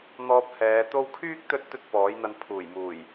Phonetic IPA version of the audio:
n̪ ɔː˧ p̚ h ɛː˨˧ t̪ o˧ w kʰ yː˥ k̚ t̪ ɵ˧ t̚ t̪ ɵ˥ t̚ p ɔː˨˥ j n̪ ɐ˧ n pʰ uː˨˩ j m uː˨˩ j

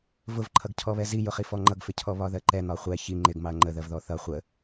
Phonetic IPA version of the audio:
v ʊ v ǃʰ ʌ ɡ cʰ ɔ β ɛ z i j ʊ χ i f ɔ ŋ͡ǃ ʌ ɡ f ɪ cʰ ɔ β ɒ ð ɜ ǃ ɛ n̪ ɒ χʷ ɛ ç i ŋ͡ǃ ɪ ɡ m ɑ ɐ̯ ŋ͡ǃ ə ð ɜ v ð ɔ θ ʌ χʷ ə

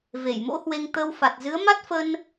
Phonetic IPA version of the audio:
v e˧˩ j m o̰˧˥ h w e˧ ŋ t̪ ə˧ w f a˨˩ t̚ z ɨ˨˦ ə̯ m a˦˥ t̚ f ə˧ n

